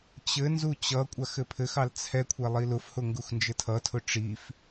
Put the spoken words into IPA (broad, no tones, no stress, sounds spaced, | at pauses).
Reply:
t͡ɕ ɘ n z u t͡ɕ ʌ kʷʼ a x ɘ pʰ ɘ x ɑ l t͡sʰ ɛ kʷʰ ɛ lˠ i l ʊ f h ʊ ŋ ɡ u x n d͡ʒ ɘ tʰ ʌ tʰ ʊ ʈ͡ʂ i f